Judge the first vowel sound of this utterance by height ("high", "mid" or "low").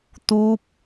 high